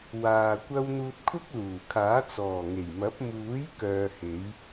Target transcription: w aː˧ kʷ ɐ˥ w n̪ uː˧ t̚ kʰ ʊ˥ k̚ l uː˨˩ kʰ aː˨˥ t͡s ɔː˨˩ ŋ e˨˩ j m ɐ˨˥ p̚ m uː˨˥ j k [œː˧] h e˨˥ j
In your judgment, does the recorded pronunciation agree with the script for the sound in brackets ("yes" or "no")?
yes